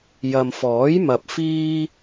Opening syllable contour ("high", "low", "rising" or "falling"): low